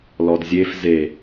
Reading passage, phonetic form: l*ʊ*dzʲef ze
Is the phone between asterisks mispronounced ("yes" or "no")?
yes